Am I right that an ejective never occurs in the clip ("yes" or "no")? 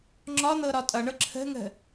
no